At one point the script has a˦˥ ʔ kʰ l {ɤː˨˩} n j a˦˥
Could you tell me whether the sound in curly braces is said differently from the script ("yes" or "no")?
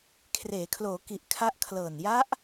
no